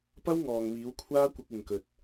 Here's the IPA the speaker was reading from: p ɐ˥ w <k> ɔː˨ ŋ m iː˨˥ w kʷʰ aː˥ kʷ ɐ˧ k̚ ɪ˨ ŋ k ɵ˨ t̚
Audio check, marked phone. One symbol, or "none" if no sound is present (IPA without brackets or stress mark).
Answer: ŋ